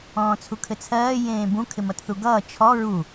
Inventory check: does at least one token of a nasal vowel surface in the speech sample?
yes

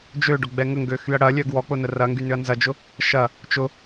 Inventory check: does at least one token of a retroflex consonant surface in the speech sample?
yes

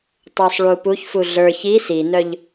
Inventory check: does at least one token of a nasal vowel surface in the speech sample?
no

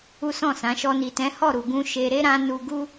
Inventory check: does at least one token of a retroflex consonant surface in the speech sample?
no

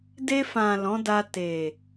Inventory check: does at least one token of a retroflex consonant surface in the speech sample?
no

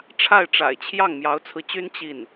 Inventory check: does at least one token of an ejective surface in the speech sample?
no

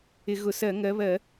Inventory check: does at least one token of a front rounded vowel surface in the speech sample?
no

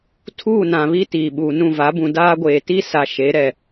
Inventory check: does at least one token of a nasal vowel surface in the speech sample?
yes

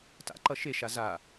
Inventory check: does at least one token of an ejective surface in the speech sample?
no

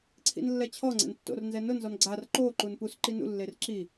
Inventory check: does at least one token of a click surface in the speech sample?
yes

